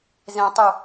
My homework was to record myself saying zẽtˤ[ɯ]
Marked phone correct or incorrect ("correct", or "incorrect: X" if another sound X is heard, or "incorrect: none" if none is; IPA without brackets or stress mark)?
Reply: correct